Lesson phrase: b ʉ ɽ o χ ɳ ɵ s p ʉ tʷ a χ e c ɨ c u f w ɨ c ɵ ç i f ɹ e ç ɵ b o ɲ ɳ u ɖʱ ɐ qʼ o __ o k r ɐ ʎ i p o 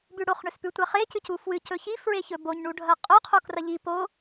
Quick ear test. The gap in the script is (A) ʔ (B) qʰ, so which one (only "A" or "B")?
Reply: B